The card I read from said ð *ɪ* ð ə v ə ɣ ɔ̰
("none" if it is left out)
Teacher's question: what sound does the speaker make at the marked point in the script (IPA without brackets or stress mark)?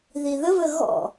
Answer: i